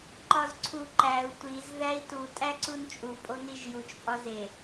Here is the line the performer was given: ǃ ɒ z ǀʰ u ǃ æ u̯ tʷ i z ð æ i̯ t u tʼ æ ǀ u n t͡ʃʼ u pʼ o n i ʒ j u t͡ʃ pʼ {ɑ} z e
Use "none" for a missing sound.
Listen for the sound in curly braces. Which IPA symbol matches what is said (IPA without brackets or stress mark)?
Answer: ɒ